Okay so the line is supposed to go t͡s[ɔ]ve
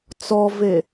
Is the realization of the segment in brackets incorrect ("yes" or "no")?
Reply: no